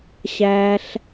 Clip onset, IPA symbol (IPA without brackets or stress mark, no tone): ɕ